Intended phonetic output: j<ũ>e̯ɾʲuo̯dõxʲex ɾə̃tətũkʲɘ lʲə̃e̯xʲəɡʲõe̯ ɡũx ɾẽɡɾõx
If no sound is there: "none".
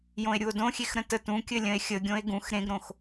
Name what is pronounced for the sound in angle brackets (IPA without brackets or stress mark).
õ